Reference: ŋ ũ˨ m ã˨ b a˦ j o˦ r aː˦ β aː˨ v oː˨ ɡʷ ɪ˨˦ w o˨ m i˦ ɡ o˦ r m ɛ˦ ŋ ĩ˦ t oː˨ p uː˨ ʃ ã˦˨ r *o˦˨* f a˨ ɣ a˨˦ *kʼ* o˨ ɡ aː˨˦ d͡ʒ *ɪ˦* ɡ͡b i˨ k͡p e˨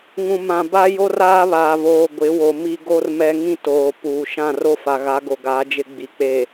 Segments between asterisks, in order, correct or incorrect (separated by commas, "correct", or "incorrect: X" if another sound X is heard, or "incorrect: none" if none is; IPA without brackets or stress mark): correct, incorrect: ɡ, correct